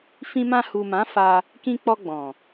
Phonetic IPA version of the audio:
fĩ˧mã˧ hu˨mã˨˦fa˧ | kĩ˧k͡pɔ˧ɡ͡bɔ̃˨

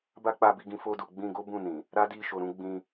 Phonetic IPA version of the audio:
ba˦k͡pa˧bi˧ɡĩ˧ fo˧du˨ɡ͡bĩ˧ɡo˦ bũ˦˨nĩ˨ | ɾa˦di˦˨ ʃo˧ɾũ˦ ɡ͡bĩ˧

